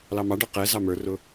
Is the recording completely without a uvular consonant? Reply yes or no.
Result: no